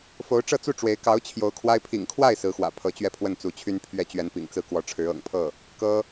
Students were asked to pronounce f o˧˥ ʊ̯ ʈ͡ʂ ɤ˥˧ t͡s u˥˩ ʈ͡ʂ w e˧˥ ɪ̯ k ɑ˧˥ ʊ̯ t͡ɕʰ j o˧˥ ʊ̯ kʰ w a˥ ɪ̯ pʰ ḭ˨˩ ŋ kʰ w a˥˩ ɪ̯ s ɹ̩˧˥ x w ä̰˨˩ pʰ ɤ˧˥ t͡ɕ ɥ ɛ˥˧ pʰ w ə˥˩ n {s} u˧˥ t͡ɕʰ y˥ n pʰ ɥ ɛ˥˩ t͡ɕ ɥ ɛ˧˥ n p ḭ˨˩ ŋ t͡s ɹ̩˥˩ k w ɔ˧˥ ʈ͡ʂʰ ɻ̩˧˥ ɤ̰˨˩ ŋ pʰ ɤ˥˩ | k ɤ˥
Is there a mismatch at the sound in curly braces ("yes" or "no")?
yes